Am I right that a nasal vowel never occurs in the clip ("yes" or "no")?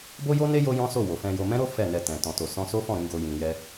no